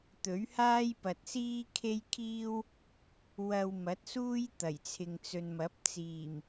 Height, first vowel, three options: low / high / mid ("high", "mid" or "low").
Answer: mid